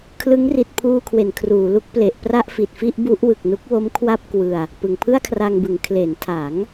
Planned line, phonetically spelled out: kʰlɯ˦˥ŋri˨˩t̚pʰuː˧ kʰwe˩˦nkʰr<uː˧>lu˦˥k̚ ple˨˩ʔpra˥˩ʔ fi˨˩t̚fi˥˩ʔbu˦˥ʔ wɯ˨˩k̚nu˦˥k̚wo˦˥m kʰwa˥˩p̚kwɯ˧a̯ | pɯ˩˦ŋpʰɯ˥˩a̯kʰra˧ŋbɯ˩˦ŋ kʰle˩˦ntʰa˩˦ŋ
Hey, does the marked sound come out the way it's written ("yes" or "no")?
no